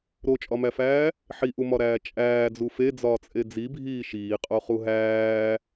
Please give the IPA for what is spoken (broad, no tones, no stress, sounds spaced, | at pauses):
ɾ o t͡ʃʼ ɒ m æ f æː | ħ i ʔ u m ɒ ɾ æː t͡ʃʼ æː d͡z u f e d͡z ɒː t͡sʼ e d͡z i bʱ iː ʃ iː qʼ o χ u ɦ æː